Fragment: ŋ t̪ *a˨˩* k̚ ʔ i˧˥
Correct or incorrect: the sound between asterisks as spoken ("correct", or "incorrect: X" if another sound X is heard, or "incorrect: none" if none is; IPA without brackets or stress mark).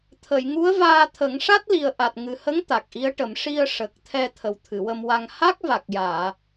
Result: correct